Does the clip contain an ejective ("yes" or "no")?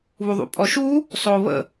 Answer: yes